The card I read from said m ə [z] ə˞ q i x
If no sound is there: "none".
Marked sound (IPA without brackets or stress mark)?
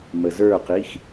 z